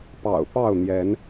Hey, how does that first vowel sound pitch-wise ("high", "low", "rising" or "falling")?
low